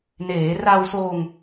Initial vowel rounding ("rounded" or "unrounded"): unrounded